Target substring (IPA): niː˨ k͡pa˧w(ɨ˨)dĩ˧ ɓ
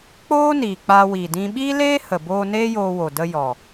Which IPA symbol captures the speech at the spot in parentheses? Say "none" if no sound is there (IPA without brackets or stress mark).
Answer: i˨